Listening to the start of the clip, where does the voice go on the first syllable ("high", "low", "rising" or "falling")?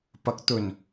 rising